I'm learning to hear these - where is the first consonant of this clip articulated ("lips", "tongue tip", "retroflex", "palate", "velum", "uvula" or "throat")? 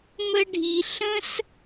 lips